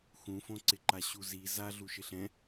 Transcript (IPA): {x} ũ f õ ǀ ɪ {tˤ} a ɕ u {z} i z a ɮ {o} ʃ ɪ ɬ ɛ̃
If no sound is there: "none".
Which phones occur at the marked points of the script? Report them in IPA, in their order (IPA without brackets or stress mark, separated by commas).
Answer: x, ǃ, z, u